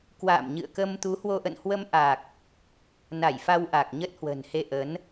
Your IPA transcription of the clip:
k w a̰ː˧˨ m ɲ ɨ̰˧˨ ə̯ k ə˧ m t̪ u˨˦ h w o˧ ʔ ə̰˧˨ n h w ə˧ m ʔ a˨˩ k̚ | n a˧˩ j f a˧ w ʔ a˨˩ k̚ ɲ ə˦˥ t̚ h w ə̤˨˩ n h e˧ ʔ ə˨˦ n

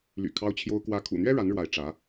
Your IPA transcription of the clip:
l y̰˨˩ kʰ ɑ˥ ʊ̯ t͡ɕʰ j o˥ ʊ̯ k w ä˥ kʰ ṵ˨˩ n̪ ɥ ɛ˥ ɻ a˧˥ n ɻ w a˧˥ ɪ̯ ʈ͡ʂ ä˧˥

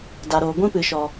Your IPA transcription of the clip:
d a˨ ɾ oː˨ ɡʷ ĩ˦ p ɨ˨ ʃ ɔ˨

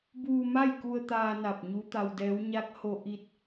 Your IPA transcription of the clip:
b uː˧ m a˥˨ j k u˧ ə̯ t̪ aː˧ n a˧˩ p̚ ɲ u˧˥ t̪ a˧ w d ɛː˧˥ w ɲ a˧˥ k̚ h o˧ ʔ i˧ t̚

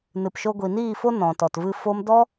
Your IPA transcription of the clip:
n ɨ˨ p ʃ o˧ ɡʷ i˨ n iː˦˨ f o˦ n ɔ̃˨ t ɔ˨ t v ɨ˧ f o˧ m d ɔ˦

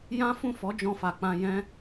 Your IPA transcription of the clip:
j ã˦ f ũ˦˨ f ɔ˨˦ d͡ʒ ɔ̃˧ f a˨ k͡p ã˧ j ɛ̃˦

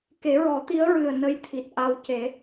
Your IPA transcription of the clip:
k e˨˩˦ ɹ ɔ˨˩˦ t̪ i˧˥ ə̯ ɹ ɨ˨˩ ə̯ n ə˧ j t̪ʰ i˨˩ t̚ ʔ a˧ w c e˨˩˦

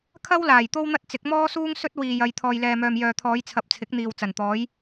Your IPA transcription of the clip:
kʰ ɐ˥ w l aː˨˩ j t̪ o˥ w n̪ ɐ˥ t̚ t͡s ɪ˨˥ k̚ m ɔː˥ s uː˥ ŋ s ɵ˥ t̚ w iː˧ j ɐ˧ j t̪ʰ ɔː˨ j l ɛː˨ m œː˨ m j œː˨ t̪ʰ ɔː˨˧ j t͡sʰ ɐ˨ p̚ t͡sʰ ɪ˨˥ k̚ n̪ iː˨ w t͡s ɐ˨˩ n t̪ ɔː˨˥ j

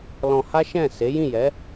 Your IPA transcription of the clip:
l ɔ̃˧ h a˦ ʃ ɛ̃˦˨ s e˨˦ j ĩ˦˨ j ɛ˨˦

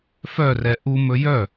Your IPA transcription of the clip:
f œ r ɛ ʔ u m ɵ j œ

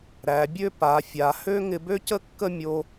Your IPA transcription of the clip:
ɾ æ˩˧ bʲ ø˥˧ p a˩˧ fʲ a˩˧ h ø˥ ŋ ɪ˧ b ø˥ c ə˥ kː ə˥˧ mʲ o˧

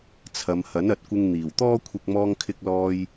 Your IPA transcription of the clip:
t͡sʰ ɐ˨˧ m h ɐ˨˥ n ɐ˨ t̚ kʷ ɪ˧ ŋ n̪ iː˨˩ w t̪ ɔː˥ kʷʰ ɪ˧ k̚ m ɔː˧ ŋ kʰ ɪ˧ k̚ l ɔː˧ j

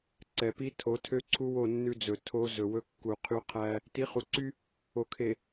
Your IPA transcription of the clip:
ǀ ɛ˨ p i˦ tʰ o˨˦ tʰ ø˦ ǀʰ u˦ w o˦˨ nː ʉ˦ d͡z ɵ˨ tʰ o˦ z ɵ˨ w ɵ˦ kː u˨ qʰ y˦ qʰ æ˦ | t i˨˦ χ u˨ ǀ y˦ | o˨ kʰ e˨

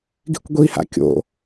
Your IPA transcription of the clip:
ɡ i̤ kʷ ɡʷ i h a̰ kʲ o̰

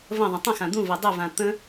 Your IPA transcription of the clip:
v ə̃ ðˤ ə̃ tˤ ə̃ x ã d̪ ũ v e dˤ ʏ v ã t̪ ə̃

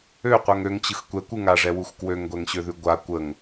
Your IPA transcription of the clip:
ø qʷ ɜ ŋ ø ŋ t͡ɕ ɯ x kʷ ɛ kʷ ɯ ŋ a ʐ ɛ w u x k w ø ŋ ɡʷ ɛ ŋ ɕ ø ð ʉ ɡʷ a kʷ ə ŋ

